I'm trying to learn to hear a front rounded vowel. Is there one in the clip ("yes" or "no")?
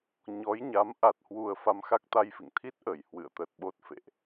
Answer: no